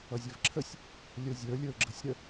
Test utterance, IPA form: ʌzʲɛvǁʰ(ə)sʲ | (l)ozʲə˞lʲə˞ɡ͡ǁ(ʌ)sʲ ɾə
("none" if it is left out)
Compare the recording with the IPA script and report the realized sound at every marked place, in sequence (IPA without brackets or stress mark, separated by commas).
ə, lʲ, ə